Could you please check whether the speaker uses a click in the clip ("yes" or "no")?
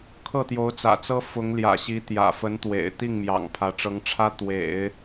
no